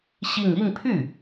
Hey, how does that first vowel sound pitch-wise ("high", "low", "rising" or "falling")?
falling